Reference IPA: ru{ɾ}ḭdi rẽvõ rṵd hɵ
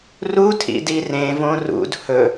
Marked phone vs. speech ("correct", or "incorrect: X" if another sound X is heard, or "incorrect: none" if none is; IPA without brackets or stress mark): incorrect: tʰ